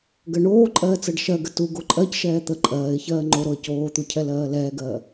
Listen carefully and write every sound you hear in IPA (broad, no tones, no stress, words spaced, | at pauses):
ɡɜɳoːǃʼɜː t͡sɜɖʃɜɡə tu ɡoǃʼɜcʃɛː t̪ə ǃʼɜːɪ̯çɜː ŋ͡ǃoɾoə̯ coːt̪u cʰɛlɜːlɛːɡɜː